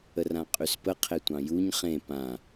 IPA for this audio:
ərãqʼyspə qʰetʷɑ̃juɲ χẽ pã

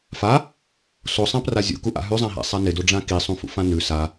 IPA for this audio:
fa | sosˤãpra zʲṵkuʔa̰ ɦʉzˤãɦa̰sˤa nɪdoɖ͡ʐã kisˤũfṵfã nʉ sa

